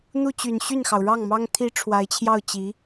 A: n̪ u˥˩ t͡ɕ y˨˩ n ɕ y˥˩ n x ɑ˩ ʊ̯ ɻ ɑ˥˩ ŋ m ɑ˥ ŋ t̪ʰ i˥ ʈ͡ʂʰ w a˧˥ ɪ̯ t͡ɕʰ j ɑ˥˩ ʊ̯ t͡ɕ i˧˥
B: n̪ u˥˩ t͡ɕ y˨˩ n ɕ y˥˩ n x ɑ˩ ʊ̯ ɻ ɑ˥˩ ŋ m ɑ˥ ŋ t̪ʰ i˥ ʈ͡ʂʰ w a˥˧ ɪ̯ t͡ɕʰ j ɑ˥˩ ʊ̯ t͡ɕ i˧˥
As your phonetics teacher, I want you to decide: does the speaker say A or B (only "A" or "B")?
A